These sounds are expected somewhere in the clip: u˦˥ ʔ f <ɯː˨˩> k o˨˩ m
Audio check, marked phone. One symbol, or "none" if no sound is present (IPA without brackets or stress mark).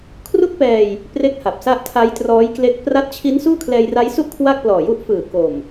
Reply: ɯː˨˩